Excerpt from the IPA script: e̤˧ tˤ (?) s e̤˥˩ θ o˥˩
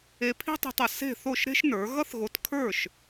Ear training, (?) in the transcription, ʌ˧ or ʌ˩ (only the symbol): ʌ˩